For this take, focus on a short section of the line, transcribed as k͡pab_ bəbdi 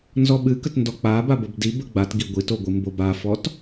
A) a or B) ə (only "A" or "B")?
A